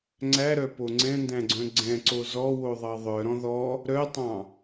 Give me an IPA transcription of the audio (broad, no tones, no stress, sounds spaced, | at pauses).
ŋ͡ǀ æ ɾ œ p o ŋ͡ǀ ɛ̃ n d æ̃ ɡ͡ǀ œ̃ ɡ͡ǀ ɛ̃ ǀ o z ɔ w o ðˤ ɑ ðˤ œ ɾ ɔ̃ ð ɔ | ɾ œ tˤ ɑ̃